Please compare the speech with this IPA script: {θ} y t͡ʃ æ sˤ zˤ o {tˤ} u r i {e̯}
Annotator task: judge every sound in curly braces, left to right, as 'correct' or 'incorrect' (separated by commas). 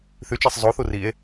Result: correct, incorrect, correct